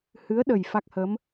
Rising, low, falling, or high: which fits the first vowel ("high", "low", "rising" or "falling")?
rising